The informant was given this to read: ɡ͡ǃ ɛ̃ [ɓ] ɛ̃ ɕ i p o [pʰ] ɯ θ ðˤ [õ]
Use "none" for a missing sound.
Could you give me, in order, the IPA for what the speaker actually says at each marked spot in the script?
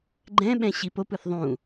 ɓ, p, ũ

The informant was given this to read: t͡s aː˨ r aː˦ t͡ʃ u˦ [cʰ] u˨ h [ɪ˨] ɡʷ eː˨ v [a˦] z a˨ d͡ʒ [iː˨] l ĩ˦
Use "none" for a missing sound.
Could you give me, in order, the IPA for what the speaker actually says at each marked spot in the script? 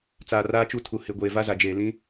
tʰ, ɪ˨, a˦, eː˨

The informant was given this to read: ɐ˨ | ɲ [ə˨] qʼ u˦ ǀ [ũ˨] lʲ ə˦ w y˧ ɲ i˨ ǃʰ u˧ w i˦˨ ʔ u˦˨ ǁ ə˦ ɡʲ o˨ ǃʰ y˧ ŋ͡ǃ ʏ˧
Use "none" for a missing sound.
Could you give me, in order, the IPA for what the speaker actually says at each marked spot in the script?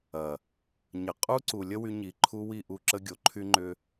ə˨, u˨

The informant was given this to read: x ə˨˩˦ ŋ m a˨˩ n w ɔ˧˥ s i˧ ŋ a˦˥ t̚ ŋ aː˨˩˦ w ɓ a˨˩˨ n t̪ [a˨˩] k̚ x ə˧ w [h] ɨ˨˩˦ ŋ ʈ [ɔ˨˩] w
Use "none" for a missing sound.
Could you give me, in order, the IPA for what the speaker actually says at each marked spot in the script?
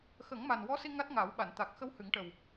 a˨˩, h, ə˨˩

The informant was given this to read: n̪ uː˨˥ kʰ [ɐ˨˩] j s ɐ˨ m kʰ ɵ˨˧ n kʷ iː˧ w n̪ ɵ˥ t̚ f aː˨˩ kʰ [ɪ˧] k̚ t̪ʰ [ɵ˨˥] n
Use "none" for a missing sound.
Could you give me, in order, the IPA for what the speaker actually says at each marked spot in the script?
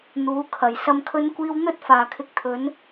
ɐ˨˩, ɪ˧, ɵ˨˥

